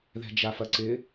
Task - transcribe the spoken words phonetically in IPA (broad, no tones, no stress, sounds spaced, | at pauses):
ð ɛ̤ d͡ʒ a f ɐ ǀ ɪ